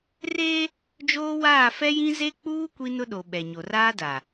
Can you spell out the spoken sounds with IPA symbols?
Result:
r eː˦ | d͡ʒ oː˦ w aː˦˨ f ɛ˦ j ĩ˦ z e˦ k͡p uː˦ kʷ i˦ n ʊ˦ ɗ o˨ ɓ ɛ˨ ɲ o˨ r aː˦ d a˨

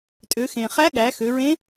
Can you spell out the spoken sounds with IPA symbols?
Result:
tʼ ø˩˧ x ẽ˩ χ æ˧˥ ɠ æ˩˧ x ø˩˧ ɹ ẽ˧˥

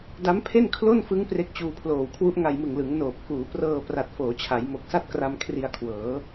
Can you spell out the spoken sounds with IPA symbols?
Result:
d a˦˥ m pʰ e˥˩ n kʰ l o˥˩ n f ɯ˦˥ ŋ p r e˦˥ k̚ t͡ɕ uː˧ pʰ l oː˨˩ w kʰ w u˦˥ ʔ ŋ a˧ j m ɯ˨˩ ŋ l ɯ˩˦ ŋ n oː˨˩ p̚ k uː˩˦ p r ɤː˧ p r a˨˩ t̚ f oː˩˦ t͡ɕʰ a˩˦ j m o˨˩ k̚ s a˥˩ t̚ k r a˧ m kʰ r i˧ a̯ kʰ w ɤː˩˦

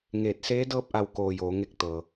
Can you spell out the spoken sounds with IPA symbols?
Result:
ŋ eː˧˩ t̚ s eː˧˥ d ɤː˥˨ p̚ ʔ a˧˩ w k oː˧˩ j oː˩˧ ŋ e˧ k̚ t̪ ɤː˩

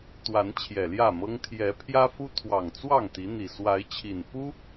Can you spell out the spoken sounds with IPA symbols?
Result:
t̪ w a˨˦ n t͡ɕʰ j ɛ˨˩ l j ä˥˨ m ɤ˦ ŋ t̪ʰ j ɛ˨˦ pʰ j ä˦ f u˦ t̪ʰ w ɑ˨˩ ŋ t͡s w ɑ˥˨ ŋ t̪ i˨˦ n̪ i˨˩ s w a˨˦ ɪ̯ t͡ɕʰ i˨˩ n f u˦

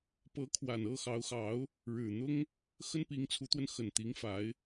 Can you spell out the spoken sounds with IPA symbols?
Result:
p ɤ˧˥ kʰ w a˨˩ n ɤ˥˩ x ɑ˧˥ ʊ̯ x ɑ˧˥ ʊ̯ | ɻ ɻ̩˨˩ n̪ ʊ˥ ŋ | x ə˥ n p i˧˥ ŋ t͡sʰ u˧˥ t̪ w ə˧ n x ə˨˩ n t̪ i˧˥ ŋ f a˧˥ ɪ̯

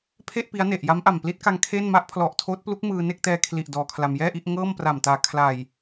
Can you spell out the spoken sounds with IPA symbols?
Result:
pʰ e˥˩ ʔ p i˦˥ a̯ n e˨˩ ʔ j a˦˥ m ʔ a˨˩ m p l i˦˥ t̚ k a˧ ŋ kʰ e˥˩ n m a˥˩ ʔ pʰ l ɔ˨˩ ʔ tʰ oː˦˥ t̚ p l u˦˥ k̚ m ɯː˧ n e˥˩ k̚ t ɛː˧ kʰ l i˨˩ ʔ d ɔː˧ kʰ l a˧ m j ɛː˥˩ ʔ i˥˩ ʔ ŋ ɤː˥˩ m p r a˨˩ m t aː˨˩ kʰ l a˨˩ j

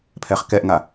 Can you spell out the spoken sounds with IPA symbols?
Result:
pʰ ɛ χ k ɛ ʔ ŋ a

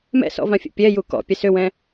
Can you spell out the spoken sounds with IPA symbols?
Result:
m ɛ̰ s ɔ̰ v ã fʲ ɛ̰ pʲ ɛ j u k ɔ̰ pʲ ɛ s ʏ w ɛ̃

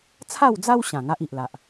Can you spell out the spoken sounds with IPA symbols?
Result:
t͡sʰ a˥˧ w d͡z a˦ w ɕ ã˨˩ ŋ a˦ ʔ i˨ ʔ l a˨ ʔ

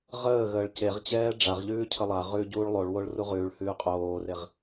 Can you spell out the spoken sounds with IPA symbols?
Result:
ʁ əː ɣ əː ɭ c e ʁ t͡ɕ ɛː ɖ͡ʐ a ʁ ʎ ʉː cʰ ə lˠ a ʁ ʉː ɟ uː ɭ lˠ o ɭ w o ɭ r u ʁ ʉː ɭ h ʉː qʼ oː r e ʁ

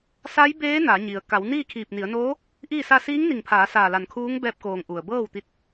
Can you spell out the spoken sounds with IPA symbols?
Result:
s a˧˥ j b eː˧˥ n a˩˧ ɲ i˩ ə̯ k a˩˧ w n iː˥˨ kʰ iː˧˩ p̚ n i˩˧ ə̯ n oː˧˥ | ʔ iː˥˨ s a˥˨ s iː˧˥ ŋ n i˧˩ ŋ pʰ aː˩˧ s aː˧˩ l a˧˩ n kʰ uː˧˥ ŋ b ɛː˧ p̚ k oː˩ ŋ ʔ u˩ ə̯ b ɤː˥˨ w t̪ i˧ t̚

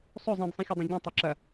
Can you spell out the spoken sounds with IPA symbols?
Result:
sˤ ɵ zˤ ĩ d sˤ ĩ xʲ ɐ dˤ ẽ ɟ ĩ tˤ o ǁ ɐ

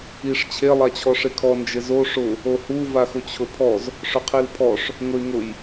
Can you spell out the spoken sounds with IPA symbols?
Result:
i ʂ t͡ɕʰ e lˠ a t͡ɕʰ ɔ ʂ e kʰ ɔ n d͡ʒ ɪ z o ʂ ʊ | o h u v a x ʊ t͡ɕʰ ʊ pʰ ɔ z | ʂ ʊ qʰ i l pʰ ɔ ʂ | ŋ ʊ y̯ ŋ ʊ j

